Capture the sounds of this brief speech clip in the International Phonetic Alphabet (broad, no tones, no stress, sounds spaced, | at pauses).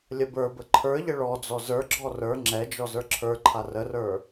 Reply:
lʲ ə b ə˞ b ə ǃʰ ə˞ ʎ ə ɭ ɔ d͡z ɔ z ə˞ ɡ͡ǁ ɔ r ə˞ ŋ͡ǁ ɛ d͡ʒ ɔ z ə˞ ǁʰ ə˞ ǃʰ a r ə r ə˞